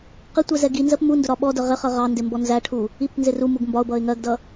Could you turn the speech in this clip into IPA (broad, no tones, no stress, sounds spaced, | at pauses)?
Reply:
q ɪ tʷ ɛ z ɛ ɡ i n z ɜ p m u n d ʊ ɾ ɒ ɓ ɔ d ə ʁ ɪ χ ɜ ʁ ɑ n d ɪ m b ɔ n z æ ʈʰ u | i p n z ɪ r u m u ɡ m b ɒ ʊ̯ b ʌ ɪ̯ ŋ ɜ ɡ d ʌ